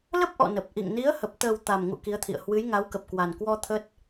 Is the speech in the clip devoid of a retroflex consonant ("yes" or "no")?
yes